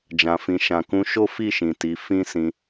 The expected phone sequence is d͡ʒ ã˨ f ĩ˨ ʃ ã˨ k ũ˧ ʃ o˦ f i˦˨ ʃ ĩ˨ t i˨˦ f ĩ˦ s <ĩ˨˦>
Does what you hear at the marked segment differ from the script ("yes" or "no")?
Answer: yes